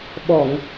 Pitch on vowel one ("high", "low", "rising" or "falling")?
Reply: low